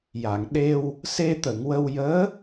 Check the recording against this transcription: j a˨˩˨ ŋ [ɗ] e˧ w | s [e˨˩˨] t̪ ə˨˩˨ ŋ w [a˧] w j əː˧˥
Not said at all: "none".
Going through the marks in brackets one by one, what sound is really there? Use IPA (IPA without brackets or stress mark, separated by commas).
ɗ, e˧, ə˧